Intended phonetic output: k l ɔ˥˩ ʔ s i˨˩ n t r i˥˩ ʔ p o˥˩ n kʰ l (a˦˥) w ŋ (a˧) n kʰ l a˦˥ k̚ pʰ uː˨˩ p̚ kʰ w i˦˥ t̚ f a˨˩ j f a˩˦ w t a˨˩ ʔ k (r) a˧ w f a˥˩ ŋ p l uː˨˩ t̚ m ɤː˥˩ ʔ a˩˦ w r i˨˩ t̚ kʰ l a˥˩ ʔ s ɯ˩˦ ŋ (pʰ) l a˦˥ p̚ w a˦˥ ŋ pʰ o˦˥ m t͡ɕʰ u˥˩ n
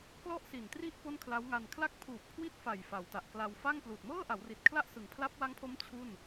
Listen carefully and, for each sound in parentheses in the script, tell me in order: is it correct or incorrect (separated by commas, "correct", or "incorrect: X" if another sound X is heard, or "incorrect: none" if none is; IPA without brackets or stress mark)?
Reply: correct, correct, incorrect: l, correct